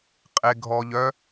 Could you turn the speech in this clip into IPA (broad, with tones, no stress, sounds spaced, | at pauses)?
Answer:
qʼ e˨ ɡʱ ɔ˨ ʎ œ˦